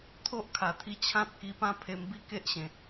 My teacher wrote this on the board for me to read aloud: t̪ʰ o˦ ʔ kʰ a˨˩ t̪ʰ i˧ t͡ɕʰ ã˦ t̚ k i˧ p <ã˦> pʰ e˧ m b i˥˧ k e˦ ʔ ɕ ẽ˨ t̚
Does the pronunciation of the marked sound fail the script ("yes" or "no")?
no